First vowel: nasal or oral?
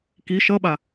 oral